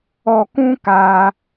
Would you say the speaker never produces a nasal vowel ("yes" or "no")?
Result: no